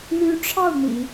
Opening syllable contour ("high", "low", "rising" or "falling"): rising